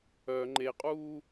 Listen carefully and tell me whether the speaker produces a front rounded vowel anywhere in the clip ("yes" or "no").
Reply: yes